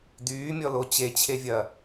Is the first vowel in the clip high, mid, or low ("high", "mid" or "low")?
high